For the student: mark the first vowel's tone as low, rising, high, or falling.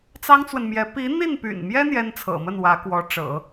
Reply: high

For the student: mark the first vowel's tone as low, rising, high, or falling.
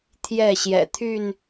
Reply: falling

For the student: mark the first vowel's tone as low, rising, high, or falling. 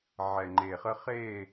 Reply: low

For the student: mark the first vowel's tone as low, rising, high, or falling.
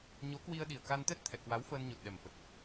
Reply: rising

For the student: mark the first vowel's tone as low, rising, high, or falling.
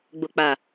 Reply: low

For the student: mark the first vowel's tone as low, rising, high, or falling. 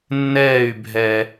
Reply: falling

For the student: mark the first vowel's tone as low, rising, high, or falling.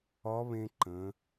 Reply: rising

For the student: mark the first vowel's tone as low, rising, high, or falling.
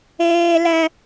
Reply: high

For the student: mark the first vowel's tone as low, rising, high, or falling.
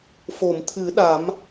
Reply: low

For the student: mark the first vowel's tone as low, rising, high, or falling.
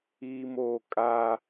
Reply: low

